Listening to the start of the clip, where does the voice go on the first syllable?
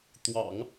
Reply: low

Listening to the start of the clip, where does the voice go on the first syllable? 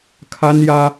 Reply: high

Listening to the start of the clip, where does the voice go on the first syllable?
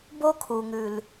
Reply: high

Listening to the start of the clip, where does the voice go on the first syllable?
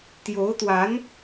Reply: rising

